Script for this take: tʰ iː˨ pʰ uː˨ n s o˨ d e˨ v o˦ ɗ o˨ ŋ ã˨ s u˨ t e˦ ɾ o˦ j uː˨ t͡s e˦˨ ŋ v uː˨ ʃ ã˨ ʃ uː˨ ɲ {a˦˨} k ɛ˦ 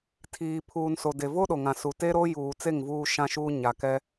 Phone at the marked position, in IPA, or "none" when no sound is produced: a˨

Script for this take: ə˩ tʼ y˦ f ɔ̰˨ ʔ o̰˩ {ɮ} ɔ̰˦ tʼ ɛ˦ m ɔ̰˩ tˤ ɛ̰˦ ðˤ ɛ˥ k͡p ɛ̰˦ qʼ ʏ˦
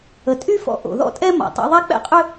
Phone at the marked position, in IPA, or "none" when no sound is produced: ð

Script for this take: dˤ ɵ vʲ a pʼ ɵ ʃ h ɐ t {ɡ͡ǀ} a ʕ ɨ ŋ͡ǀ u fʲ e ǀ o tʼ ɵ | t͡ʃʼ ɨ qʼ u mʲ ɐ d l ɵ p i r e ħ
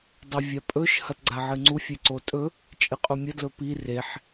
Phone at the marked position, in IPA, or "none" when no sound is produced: ɡ͡ǀ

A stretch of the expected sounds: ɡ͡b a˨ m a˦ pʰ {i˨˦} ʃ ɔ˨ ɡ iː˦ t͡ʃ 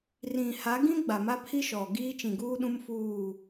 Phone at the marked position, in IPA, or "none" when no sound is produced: i˦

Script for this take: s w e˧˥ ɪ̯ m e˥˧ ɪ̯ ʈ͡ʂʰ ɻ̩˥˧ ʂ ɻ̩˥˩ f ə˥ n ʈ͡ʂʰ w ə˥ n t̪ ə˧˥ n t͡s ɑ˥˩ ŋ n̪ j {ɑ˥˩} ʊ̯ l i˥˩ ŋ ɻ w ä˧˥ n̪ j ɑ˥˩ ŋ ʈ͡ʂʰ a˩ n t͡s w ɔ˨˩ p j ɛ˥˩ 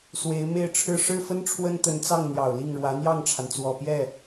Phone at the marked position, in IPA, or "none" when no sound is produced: ɑ˨˩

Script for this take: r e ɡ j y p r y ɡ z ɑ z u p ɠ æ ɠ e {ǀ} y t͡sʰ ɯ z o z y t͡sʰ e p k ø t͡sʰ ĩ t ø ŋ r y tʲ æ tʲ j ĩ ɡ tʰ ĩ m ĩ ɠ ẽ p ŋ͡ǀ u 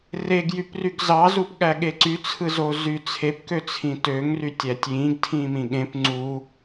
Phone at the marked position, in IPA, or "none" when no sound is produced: ǀ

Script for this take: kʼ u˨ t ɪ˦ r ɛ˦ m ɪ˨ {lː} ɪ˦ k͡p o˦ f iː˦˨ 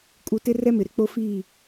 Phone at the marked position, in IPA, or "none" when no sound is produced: ɾ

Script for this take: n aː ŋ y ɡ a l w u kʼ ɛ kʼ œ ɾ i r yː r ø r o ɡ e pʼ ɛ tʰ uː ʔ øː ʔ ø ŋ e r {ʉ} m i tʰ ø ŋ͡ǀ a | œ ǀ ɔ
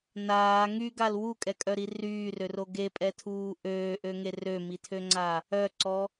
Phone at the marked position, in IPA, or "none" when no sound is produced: ø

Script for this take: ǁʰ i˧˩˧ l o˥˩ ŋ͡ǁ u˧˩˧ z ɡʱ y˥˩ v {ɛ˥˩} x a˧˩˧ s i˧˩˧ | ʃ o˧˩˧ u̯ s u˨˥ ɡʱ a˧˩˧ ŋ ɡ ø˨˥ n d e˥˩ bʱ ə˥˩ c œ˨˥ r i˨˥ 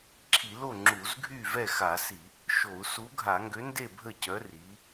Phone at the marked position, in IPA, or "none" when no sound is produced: ɛ˥˩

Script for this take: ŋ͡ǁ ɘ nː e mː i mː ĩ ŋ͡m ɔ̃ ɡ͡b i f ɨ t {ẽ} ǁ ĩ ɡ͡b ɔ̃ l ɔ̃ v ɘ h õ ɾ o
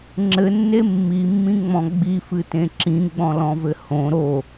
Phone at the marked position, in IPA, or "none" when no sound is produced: ẽ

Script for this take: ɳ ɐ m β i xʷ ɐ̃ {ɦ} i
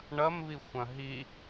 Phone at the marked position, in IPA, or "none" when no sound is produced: ɦ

